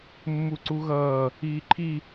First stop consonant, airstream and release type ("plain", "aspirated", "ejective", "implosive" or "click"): click